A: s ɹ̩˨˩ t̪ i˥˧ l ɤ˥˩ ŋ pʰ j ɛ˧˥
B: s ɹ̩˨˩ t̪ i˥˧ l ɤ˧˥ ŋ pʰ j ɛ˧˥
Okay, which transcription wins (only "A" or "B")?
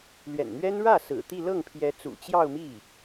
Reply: A